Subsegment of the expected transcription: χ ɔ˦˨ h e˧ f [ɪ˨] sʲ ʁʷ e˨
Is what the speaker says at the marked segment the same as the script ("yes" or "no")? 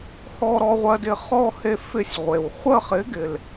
no